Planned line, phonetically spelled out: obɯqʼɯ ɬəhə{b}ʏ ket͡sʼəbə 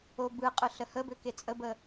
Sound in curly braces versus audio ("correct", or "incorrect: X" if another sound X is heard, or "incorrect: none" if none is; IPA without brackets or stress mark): correct